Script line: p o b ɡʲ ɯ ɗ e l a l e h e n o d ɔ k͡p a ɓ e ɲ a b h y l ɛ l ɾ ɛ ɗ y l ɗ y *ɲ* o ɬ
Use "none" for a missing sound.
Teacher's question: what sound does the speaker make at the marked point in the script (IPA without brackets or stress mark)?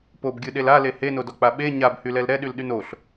n